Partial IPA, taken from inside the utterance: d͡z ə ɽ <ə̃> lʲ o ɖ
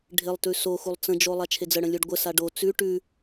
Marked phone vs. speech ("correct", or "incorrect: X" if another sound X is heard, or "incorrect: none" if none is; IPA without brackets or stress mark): correct